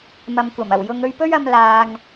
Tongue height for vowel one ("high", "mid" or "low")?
low